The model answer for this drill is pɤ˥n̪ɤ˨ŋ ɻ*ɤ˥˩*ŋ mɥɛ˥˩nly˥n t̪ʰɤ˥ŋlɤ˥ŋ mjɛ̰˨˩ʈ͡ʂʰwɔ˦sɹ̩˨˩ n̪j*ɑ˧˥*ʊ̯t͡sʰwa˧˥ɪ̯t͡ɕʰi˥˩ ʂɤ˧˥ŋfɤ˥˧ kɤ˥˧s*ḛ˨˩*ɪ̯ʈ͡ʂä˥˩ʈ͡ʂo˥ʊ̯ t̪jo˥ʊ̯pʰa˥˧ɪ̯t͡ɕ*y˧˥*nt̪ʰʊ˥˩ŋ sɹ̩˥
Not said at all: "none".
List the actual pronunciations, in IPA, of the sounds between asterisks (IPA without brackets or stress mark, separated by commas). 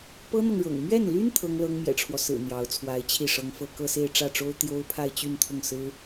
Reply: ɤ̰˨˩, ɑ˧˥, e˥˧, y˥˧